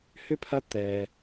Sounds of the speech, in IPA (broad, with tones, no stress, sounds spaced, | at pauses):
h ʏ˥ pʰ ɐ˦ t̪ ɛ˩